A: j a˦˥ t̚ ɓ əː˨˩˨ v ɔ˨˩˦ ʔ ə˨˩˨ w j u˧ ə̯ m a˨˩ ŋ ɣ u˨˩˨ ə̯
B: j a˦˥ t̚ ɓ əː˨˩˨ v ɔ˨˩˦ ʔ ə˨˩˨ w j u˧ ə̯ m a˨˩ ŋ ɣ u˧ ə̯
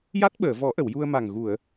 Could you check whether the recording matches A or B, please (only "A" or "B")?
A